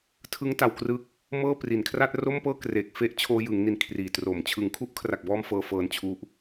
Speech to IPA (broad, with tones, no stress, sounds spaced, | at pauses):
tʰ ɯ˦˥ ŋ t a˧ w k r ɯ˦˥ k̚ | m ɤː˥˩ p r i˨˩ n kʰ r a˥˩ t̚ r o˥˩ m p ɤː˥˩ k r e˨˩ k̚ f e˦˥ ʔ t͡ɕʰ oː˧ j ɯ˩˦ ŋ n i˨˩ n kʰ r iː˨˩ t r o˨˩ m t͡ɕʰ ɯ˩˦ ŋ kʰ u˦˥ ʔ kʰ r a˨˩ k̚ b ɔː˧ m f ɤː˧ f ɤː˧ n t͡ɕʰ u˦˥ ʔ